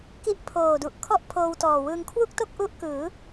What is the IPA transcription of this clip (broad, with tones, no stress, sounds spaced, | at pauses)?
k i˦˥ ʔ pʰ oː˨˩ d u˨˩ ʔ kʰ ɔ˥˩ ʔ pʰ oː˧ w t ɔː˨˩ w ɯː˧ ŋ kʰ w u˥˩ k̚ t o˥˩ k̚ ʔ u˦˥ ʔ k ɯː˩˦